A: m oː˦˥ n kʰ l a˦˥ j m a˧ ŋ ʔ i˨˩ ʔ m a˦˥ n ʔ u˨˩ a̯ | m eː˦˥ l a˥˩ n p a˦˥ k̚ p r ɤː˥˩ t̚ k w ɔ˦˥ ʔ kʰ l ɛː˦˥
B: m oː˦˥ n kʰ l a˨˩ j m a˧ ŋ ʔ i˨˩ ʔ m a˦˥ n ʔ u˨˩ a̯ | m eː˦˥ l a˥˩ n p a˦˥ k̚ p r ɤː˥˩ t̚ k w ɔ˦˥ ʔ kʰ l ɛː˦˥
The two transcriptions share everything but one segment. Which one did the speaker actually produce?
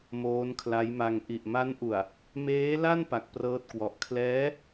A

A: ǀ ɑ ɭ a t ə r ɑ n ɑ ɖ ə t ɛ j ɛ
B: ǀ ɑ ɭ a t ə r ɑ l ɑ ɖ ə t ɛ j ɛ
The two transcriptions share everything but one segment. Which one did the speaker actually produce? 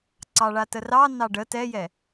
A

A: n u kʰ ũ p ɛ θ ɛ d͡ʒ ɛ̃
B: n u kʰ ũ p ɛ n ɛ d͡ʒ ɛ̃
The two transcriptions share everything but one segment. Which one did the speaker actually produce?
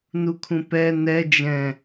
B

